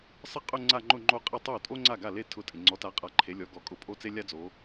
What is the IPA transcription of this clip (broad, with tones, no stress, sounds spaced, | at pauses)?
sˤ ɪ˥ qʼ ʊ˥˧ ŋ͡ǀ a˥˧ ŋ͡ǃ ʊ˥˧ ŋ͡ǃ o˥˩ qʼ ɪ˥˧ tˤ o˥˩ tʼ o˥ ŋ͡ǀ a˥˩ ɡ a˥˩ l e˥˧ tʰ ʊ˥˧ tʼ ɪ˨ ŋ͡ǀ ɔ˨˦ t a˨˦ qʼ a˨˦ ǃʰ e˨˦ lʲ ɔ˨˦ ɡ ɔ˨˦ kʼ ʊ˥˩ pʼ o˥ t͡s e˥ lʲ a˥ d͡z o˨˦